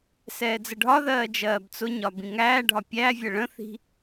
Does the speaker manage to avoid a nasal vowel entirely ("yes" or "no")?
no